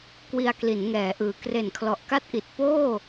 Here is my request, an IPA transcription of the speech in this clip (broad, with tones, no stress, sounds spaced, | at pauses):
k w i˧ a̯ k l i˩˦ n ŋ ɛː˩˦ ʔ ɯː˩˦ k r e˨˩ n kʰ l ɔ˨˩ ʔ k a˥˩ t̚ ʔ i˨˩ t̚ p oː˥˩